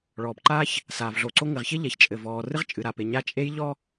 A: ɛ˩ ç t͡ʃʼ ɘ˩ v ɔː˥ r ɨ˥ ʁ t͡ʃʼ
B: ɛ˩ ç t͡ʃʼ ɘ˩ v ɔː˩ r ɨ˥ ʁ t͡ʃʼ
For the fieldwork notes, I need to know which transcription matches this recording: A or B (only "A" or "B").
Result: B